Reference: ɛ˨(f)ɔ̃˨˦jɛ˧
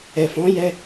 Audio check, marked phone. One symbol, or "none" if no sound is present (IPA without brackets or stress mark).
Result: f